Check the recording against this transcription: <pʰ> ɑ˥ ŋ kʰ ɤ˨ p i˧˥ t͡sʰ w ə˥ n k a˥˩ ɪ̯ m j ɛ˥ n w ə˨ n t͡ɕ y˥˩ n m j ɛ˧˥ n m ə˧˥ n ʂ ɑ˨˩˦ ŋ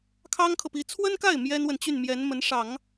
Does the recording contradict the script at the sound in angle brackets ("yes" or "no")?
yes